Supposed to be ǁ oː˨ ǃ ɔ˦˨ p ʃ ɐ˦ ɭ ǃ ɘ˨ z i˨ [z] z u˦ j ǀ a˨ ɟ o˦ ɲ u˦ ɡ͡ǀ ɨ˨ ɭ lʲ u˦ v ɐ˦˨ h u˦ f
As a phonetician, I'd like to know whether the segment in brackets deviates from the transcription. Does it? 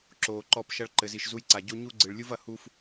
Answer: yes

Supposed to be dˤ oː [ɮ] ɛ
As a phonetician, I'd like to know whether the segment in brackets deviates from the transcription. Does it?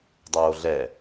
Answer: no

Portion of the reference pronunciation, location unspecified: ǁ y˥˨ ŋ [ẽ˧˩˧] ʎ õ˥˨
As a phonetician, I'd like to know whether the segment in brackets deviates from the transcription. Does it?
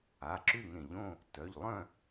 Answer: no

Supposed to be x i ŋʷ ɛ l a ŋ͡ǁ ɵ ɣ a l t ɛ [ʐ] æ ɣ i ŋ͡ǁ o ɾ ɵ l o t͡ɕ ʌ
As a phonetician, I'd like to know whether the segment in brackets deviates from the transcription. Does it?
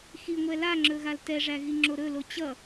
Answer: no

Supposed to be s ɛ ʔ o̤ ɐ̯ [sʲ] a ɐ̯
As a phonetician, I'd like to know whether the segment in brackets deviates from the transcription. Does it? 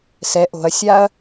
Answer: no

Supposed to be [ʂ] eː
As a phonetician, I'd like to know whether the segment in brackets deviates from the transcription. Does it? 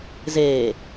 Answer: yes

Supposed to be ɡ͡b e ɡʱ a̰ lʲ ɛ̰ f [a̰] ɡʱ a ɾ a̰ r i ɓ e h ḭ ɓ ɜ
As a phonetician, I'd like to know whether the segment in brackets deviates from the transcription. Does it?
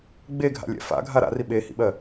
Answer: no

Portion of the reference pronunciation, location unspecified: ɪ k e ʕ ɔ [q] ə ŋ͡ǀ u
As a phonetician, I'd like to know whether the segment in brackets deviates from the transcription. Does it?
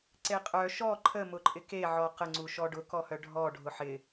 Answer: no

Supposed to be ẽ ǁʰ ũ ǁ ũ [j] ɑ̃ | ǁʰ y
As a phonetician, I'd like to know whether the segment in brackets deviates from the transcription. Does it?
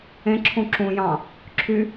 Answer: no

